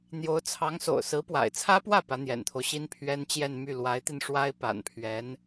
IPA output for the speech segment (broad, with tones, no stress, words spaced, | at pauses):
n̪jo˧˥ʊ̯t͡sʰɑ˧˥ŋso̰˨˩ʊ̯ sɹ̩˧˥pwa̰˨˩ɪ̯t͡sʰä˥pwä˥˩ pä˧˥n̪jɛ̰˨˩nt̪ʰo˦ʊ̯ɕi˥n pʰɥɛ˥nt͡ɕjɛ˥˧nmy˥˩ lwa˧˥ɪ̯t̪i˧nʂwa˥ɪ̯ pa̰˨˩npʰɥɛ˧˥n